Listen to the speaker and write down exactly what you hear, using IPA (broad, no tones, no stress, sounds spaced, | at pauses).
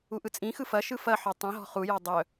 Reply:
u ʔ ɯ t͡sʼ ĩ x ɯ f ɐ ʃ ɯ f ɐ ħ ɔ tˤ ĩ ɦ ɔ̤ χ u j ɔ dˤ œ